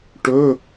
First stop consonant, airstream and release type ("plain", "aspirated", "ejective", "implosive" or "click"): plain